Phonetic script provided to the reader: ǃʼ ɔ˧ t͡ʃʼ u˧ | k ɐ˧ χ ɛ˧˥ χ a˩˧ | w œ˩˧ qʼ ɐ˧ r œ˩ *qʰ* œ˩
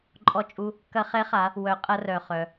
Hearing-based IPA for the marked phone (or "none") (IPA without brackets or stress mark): χ